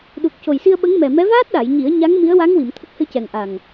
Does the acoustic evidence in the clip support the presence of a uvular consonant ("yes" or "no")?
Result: no